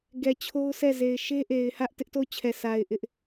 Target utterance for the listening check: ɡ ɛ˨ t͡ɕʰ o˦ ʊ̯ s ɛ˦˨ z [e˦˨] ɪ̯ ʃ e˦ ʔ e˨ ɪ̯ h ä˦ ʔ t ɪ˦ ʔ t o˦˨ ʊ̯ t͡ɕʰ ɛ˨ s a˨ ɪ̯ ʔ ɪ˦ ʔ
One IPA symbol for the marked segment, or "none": e˨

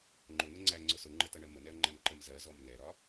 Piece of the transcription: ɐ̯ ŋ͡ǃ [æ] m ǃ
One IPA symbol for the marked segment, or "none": æ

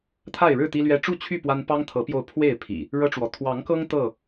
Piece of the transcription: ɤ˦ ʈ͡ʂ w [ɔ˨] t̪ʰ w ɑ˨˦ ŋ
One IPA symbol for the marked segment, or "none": ɔ˨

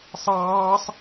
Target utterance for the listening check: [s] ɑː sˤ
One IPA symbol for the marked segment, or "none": sˤ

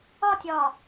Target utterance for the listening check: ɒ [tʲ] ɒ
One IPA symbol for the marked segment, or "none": tʲ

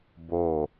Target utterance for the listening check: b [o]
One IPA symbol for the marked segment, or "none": o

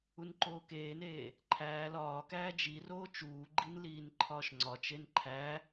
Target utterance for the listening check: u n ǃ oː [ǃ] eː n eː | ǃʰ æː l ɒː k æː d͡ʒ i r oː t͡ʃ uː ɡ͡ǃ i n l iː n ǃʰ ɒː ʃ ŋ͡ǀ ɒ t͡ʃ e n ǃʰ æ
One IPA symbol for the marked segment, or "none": k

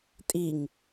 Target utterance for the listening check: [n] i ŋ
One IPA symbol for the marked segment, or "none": tʼ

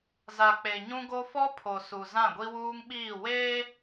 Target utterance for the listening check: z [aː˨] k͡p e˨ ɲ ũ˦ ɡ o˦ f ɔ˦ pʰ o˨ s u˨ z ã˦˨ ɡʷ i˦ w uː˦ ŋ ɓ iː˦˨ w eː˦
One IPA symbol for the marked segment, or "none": a˨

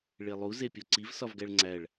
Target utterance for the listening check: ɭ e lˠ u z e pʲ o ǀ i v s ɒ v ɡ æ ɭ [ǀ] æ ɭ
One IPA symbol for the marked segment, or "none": ŋ͡ǀ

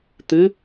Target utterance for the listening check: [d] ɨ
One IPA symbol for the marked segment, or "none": t̪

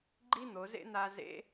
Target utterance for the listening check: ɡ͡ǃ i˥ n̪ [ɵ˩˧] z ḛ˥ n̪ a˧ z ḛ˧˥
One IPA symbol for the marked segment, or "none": o˩˧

